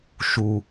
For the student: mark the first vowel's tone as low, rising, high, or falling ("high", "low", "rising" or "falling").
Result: low